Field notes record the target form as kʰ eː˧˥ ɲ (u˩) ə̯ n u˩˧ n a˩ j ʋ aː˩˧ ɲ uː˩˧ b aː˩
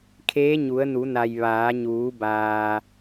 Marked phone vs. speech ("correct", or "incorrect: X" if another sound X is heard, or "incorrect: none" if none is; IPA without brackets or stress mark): incorrect: u˩˧